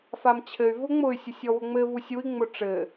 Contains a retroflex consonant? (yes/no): yes